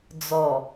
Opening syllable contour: low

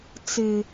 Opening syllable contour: low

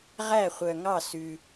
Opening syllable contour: falling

